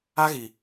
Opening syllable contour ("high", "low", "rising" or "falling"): high